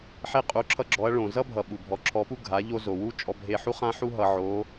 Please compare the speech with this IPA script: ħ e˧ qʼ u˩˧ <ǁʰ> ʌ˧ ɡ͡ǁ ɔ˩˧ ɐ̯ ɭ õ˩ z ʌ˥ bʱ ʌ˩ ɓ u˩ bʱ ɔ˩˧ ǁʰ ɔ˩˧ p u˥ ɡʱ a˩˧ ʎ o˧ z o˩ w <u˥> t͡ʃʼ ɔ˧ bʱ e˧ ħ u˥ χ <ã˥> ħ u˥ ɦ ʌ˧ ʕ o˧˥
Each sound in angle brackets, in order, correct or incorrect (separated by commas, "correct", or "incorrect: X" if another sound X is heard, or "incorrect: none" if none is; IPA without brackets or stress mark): correct, correct, correct